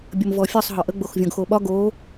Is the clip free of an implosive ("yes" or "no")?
no